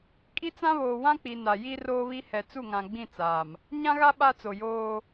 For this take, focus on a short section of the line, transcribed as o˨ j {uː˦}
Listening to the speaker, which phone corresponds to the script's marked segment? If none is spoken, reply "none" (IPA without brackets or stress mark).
oː˦